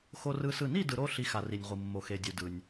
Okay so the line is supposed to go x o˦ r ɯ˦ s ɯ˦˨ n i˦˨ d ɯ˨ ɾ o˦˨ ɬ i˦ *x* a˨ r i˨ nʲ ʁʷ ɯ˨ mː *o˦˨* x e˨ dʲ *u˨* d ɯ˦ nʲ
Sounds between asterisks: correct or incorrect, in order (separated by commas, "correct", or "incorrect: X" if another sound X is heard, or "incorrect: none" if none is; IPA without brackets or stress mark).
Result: correct, incorrect: o˨, correct